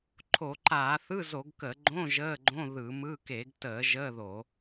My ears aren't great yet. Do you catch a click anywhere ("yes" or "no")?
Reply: yes